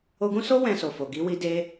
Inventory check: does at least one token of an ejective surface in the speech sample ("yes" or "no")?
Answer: no